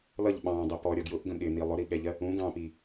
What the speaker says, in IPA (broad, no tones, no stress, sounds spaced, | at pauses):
l ʌ ʎ ɓ ɑ̃ dˤ ɪ p ɔ ɾʲ ɒ ɡ j ʊ ʔ ɡ ə̃ ɠ ɪ n i lˠ ʊ ɾ i ɠ ɛ ʎ ɜ | ũ ɡ ɑ̃ p i